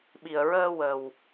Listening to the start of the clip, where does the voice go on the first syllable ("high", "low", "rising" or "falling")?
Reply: low